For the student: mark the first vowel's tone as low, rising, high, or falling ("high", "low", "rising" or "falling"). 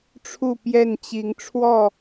falling